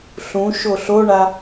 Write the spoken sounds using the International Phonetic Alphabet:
ɬũ ʃoɬoɳa

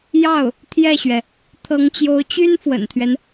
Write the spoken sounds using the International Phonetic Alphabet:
jɑ˥˩ʊ̯ | t̪ʰjɛ˥˩ɕɥɛ˩ | t̪ʰɤ˧˥ŋt͡ɕjo˧˥ʊ̯t͡ɕy˥n fwə̰˨˩nt̪ʰɥɛ˦n

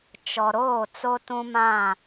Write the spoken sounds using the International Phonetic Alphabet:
t͡ʃɔ˨ɾoː˦˨ t͡so˦tũ˦mã˦˨

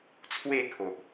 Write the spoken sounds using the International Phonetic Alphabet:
t͡sʰwe˥˧kʰo˨ʔ

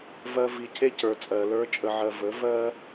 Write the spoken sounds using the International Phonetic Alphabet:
vɜ˦vi˧ cʰe˦cə˞˨t͡sʼɜ˨ lə˞˦t͡ʃʼə˧ʕɜ˧ və˨˦vɜ˦

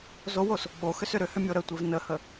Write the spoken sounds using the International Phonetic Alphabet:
zowos | ɓoxʏs ʏɾʏhʏ mʲoɾətʷev nəhə

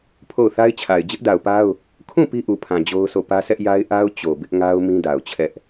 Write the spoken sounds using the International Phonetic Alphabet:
pʰo˦˨ʊ̯θa˦ɪ̯t͡ɕʰa˨ɪ̯ d͡ʑɪ˦ʔda˨ʊ̯pa˦ʊ̯ | kʰũ˦˨ pi˦ʔu˨pʰã˨ d͡ʑo˦ʊ̯so˦˨ pä˦sɛ˦ʔja˦ɪ̯ ʔa˦ʊ̯ t͡ɕo˨bɪ˦ʔŋa˦ʊ̯ mĩ˦da˨ʊ̯t͡ɕʰɛ˦ʔ

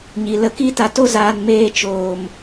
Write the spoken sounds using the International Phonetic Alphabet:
ɲi˨lə˧ki˦ ta˧to˦zaː˧n meː˧t͡ʃoː˨m

